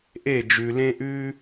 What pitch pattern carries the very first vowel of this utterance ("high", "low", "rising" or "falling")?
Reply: falling